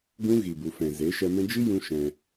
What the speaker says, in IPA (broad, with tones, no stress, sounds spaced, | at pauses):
ɡ ũ˦ ɣ i˨ b u˨ f ɛ̃˨ z e˨˦ ʃ ɛ˧ m ɛ̃˦ d͡ʒ i˦ j ũ˧ ʃ ɛ̃˧